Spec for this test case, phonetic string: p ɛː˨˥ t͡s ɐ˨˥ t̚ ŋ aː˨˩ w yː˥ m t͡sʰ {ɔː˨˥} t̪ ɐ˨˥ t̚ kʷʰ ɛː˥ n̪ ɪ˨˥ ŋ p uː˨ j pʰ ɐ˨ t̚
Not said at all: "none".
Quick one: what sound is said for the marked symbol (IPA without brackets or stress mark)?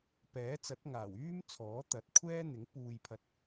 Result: ɔː˨˥